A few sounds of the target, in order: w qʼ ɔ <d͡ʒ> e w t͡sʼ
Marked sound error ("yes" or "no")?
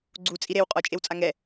yes